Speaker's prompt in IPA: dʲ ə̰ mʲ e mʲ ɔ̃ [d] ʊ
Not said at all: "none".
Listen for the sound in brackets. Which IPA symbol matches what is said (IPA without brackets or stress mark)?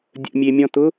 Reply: t